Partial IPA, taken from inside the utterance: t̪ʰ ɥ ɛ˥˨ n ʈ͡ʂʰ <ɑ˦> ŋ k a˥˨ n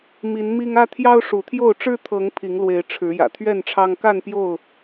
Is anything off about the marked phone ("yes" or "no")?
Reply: no